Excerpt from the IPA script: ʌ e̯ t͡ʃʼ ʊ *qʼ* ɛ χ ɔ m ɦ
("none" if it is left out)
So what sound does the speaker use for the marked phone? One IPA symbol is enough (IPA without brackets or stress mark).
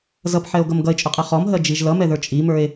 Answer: qʼ